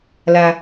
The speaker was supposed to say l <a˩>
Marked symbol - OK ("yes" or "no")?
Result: yes